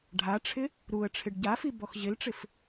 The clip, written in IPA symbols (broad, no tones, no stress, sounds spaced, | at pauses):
ɖʱ a ʈ͡ʂʰ ɪ | ɾ u ə̯ ʈ͡ʂʰ ɪ ɖ ɟ a f i b ɔ x ʑ ɪ l ʈ͡ʂ ɪ f